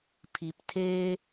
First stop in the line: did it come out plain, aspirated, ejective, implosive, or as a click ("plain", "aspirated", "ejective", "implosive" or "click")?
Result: aspirated